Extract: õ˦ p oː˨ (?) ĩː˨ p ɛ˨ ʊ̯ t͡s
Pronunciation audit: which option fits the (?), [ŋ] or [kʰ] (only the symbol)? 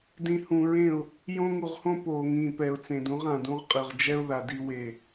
ŋ